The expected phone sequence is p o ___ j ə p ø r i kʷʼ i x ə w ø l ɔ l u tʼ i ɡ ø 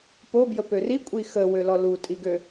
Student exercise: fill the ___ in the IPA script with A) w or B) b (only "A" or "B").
B